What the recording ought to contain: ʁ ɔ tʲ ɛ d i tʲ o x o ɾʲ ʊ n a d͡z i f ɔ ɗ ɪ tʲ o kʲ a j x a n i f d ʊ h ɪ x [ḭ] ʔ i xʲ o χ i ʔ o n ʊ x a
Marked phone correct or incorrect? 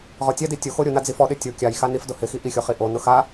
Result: incorrect: i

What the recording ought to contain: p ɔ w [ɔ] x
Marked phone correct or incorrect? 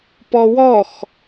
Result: correct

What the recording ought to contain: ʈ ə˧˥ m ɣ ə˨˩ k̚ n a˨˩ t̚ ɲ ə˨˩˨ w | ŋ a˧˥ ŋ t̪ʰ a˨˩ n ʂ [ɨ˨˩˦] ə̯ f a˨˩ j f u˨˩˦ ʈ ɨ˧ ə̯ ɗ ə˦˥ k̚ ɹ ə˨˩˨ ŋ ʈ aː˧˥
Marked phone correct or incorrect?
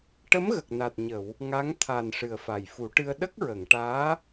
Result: incorrect: ɨ˨˩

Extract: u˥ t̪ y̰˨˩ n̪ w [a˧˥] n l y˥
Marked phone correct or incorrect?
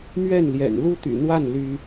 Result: incorrect: a˥˩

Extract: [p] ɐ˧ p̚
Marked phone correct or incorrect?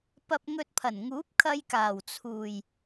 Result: correct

